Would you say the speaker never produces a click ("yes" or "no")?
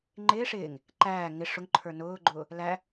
no